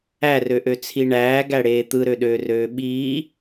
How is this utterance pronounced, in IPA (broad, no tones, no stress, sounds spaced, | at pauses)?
æ r ø ʔ ø t͡sʰ i ɳ æː ɡ æ ɽ eː t̪ ɯ ɾ ø ɗ øː r øː ɓ iː